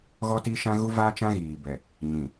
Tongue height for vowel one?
mid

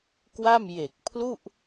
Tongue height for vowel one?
low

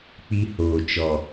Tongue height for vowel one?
high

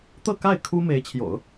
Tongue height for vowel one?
mid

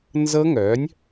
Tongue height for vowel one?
mid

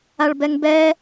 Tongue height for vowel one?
low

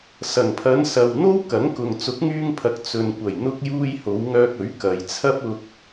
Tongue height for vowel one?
low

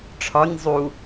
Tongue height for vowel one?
low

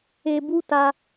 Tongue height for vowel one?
mid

